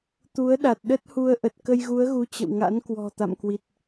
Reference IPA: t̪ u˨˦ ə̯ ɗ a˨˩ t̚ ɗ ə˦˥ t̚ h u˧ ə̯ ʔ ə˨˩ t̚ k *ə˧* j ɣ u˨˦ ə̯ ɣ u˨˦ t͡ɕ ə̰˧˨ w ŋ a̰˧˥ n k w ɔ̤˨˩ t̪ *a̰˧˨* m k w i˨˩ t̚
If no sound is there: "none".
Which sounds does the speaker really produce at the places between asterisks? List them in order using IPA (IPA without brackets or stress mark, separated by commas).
ə˧, a̰˧˨